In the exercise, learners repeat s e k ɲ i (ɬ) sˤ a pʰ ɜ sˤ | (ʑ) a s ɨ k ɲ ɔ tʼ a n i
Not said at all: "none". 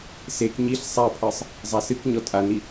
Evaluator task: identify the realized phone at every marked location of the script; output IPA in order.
ɬ, zˤ

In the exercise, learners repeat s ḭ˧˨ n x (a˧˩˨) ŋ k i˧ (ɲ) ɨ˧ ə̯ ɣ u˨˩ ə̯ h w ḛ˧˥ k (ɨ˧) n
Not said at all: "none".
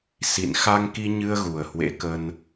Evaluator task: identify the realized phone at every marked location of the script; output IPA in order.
a˧, ɲ, ə˧

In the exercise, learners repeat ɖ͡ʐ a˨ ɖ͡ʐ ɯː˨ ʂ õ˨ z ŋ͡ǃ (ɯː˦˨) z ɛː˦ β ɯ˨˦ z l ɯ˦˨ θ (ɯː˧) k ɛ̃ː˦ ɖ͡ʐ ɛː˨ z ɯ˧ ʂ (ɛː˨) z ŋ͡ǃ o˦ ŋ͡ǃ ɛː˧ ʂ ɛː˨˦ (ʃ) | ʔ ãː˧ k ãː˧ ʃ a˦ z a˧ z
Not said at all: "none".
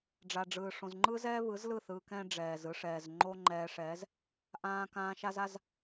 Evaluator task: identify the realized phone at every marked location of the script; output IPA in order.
ɯː˦, ɯː˧, ɛː˨, z

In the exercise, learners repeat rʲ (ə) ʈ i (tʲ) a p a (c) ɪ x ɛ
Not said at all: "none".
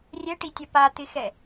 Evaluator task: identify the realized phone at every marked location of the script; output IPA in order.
ɛ, tʲ, t̪

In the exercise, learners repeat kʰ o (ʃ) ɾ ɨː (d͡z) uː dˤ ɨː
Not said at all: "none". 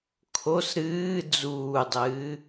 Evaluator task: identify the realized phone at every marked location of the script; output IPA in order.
s, d͡z

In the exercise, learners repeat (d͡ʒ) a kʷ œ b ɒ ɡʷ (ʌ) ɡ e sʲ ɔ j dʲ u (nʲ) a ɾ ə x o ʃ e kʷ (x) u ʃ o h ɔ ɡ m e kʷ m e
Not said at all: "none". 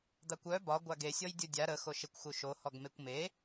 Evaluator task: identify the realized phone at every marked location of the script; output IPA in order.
d̪, a, dʲ, x

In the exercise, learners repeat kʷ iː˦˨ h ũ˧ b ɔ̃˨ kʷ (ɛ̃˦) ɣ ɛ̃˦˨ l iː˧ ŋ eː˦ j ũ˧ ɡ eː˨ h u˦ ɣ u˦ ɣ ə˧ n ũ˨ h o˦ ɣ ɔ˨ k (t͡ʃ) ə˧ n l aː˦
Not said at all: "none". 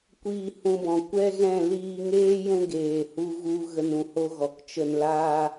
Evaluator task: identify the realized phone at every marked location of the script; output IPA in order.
ɛ˦, t͡ʃ

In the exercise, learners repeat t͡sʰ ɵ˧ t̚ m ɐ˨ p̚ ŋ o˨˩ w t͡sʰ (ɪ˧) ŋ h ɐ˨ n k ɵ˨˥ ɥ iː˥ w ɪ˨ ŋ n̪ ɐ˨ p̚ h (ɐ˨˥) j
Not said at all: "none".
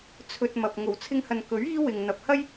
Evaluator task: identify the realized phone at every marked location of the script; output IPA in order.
ɪ˧, ɐ˥

